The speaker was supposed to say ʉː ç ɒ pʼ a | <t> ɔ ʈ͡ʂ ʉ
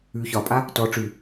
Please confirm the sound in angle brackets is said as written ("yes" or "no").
yes